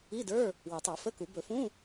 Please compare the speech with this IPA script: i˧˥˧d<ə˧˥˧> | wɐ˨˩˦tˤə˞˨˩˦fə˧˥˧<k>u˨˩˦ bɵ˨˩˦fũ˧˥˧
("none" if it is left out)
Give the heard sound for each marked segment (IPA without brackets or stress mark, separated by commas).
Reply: ə˞˧˥˧, k